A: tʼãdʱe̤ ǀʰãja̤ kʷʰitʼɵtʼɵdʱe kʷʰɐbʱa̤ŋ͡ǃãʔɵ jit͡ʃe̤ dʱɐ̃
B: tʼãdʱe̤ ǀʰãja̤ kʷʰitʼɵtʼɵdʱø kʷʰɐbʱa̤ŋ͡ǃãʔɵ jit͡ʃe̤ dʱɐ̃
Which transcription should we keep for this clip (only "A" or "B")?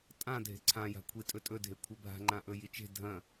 A